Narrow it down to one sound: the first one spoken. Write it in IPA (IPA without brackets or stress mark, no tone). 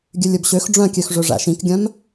ɡʲ